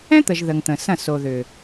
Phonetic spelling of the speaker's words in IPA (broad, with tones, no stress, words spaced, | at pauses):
ɛ̃˦t̪ə˨ʒ ðə˨ŋ t̪ə̃˨sɐ̃˦˨ so˨ðʏ˨